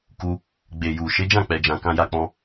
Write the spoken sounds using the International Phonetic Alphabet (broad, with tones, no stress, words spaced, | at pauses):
ku˧ | ɡ͡be˨ju˨ ʃe˨˦d͡ʒã˦˨k͡pɛ˨d͡ʒã˨ kã˧ja˧k͡pɔ̃˧